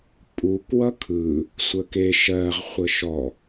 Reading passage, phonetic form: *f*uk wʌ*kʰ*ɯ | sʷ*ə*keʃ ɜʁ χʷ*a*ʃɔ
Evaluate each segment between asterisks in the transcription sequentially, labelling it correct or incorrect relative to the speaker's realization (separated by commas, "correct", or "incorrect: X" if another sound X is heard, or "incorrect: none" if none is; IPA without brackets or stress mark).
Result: incorrect: pʼ, correct, correct, incorrect: ə